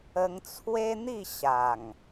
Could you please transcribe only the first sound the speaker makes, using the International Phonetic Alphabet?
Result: ə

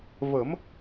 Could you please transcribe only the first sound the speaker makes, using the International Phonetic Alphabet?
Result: v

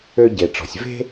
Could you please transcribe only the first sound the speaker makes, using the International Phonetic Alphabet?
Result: ø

